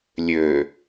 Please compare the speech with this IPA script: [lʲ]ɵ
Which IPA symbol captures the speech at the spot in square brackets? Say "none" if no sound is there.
lʲ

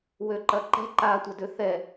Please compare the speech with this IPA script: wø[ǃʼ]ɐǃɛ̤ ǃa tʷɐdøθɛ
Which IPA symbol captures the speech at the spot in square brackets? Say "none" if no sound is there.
ǃ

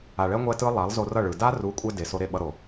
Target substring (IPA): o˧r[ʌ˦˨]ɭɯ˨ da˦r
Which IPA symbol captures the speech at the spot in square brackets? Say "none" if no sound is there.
ʌ˦˨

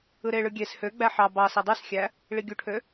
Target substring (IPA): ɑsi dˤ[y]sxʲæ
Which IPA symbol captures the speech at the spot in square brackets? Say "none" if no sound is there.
y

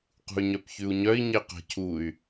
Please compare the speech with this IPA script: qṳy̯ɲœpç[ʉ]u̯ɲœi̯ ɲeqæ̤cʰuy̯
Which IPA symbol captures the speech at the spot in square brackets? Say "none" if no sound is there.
ʉ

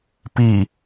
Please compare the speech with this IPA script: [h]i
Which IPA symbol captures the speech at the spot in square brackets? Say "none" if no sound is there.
p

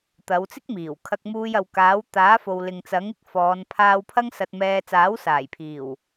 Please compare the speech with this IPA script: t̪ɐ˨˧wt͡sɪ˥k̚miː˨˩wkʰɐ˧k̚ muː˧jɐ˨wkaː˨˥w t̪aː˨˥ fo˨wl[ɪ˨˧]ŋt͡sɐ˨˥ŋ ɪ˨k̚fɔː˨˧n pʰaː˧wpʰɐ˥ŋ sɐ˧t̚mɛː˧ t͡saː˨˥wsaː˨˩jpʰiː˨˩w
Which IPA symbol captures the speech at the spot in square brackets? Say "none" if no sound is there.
ɪ˨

